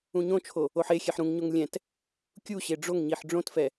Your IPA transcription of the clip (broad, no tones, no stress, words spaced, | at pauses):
ũɲõt͡ʃʰo | oħexʲɛħ ɾũŋɲoŋ lʲɛ̃t | kʲuɕe ɖ͡ʐoŋɲiħ ɖ͡ʐõtfɛ